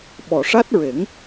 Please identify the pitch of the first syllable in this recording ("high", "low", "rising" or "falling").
low